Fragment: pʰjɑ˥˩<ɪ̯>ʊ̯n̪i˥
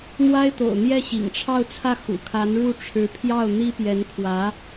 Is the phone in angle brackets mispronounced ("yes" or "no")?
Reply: yes